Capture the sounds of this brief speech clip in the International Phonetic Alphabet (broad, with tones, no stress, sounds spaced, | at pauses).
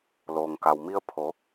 l oː˩ ŋ k a˩ w m i˧ ə̯ pʰ o˩˧